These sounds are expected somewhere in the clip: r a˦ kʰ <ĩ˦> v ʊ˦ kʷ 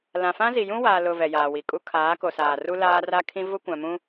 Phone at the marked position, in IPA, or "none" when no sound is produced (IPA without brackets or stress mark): ĩ˦